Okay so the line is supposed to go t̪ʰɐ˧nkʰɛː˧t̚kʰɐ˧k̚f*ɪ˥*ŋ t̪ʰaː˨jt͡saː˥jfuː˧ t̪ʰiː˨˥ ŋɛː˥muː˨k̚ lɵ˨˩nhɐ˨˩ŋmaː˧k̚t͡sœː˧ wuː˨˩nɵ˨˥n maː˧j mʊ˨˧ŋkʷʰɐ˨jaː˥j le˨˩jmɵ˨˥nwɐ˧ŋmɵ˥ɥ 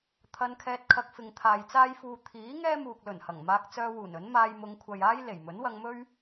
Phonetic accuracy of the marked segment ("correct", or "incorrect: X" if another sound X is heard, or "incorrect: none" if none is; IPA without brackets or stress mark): incorrect: ɪ˨